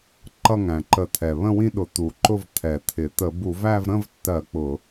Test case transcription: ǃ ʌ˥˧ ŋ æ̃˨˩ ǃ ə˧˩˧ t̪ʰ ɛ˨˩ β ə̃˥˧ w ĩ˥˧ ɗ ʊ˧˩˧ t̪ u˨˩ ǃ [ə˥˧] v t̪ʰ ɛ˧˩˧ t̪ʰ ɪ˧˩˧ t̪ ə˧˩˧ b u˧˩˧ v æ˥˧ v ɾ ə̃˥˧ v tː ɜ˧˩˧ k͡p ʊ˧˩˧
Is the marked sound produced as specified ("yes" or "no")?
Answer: no